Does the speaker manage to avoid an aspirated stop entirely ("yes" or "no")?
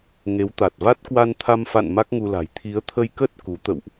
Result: no